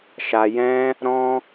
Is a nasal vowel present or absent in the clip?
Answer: present